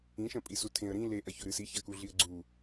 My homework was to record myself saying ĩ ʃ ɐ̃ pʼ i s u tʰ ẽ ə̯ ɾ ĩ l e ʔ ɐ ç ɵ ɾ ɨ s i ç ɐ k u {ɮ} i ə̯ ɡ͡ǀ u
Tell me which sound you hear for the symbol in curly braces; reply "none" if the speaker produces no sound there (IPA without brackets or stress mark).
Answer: ɮ